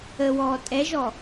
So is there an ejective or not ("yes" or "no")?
yes